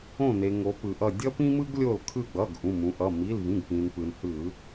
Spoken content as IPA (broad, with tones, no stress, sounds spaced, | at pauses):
õ˧˩ n e˩ ŋ o˩˧ p ɯ˩ ʔ ʌ˧˩ dʲ ʌ˦ p ĩ˦ m ɯ˦ ɡ lʲ o˧˩ l kʰ ɯ˧˩ ɡ͡b ʌ˩˧˩ ɡ ʔ ũ˩˧˩ m ũ˩˧ ʔ ʌ˩˧˩ m i˩˧˩ l v ĩ˩˧˩ ɡ p ĩ˩ n p ɯ˩ n h ɯ˧˩˧